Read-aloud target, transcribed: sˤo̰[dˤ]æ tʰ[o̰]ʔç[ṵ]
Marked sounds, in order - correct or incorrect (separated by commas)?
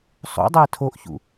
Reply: correct, incorrect, correct